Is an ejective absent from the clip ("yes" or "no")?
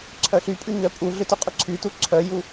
no